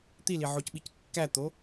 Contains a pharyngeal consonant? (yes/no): yes